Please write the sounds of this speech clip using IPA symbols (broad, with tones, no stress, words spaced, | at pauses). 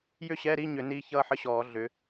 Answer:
jʏ˥˧ɕɛ˧˥˧ɾi˧˥˧ɲʏ˧˩˧ niː˦˥ çʌː˥˧ħə˦˥ɕɔː˧˩˧ ɮʏ˨˦